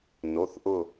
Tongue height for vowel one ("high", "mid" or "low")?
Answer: mid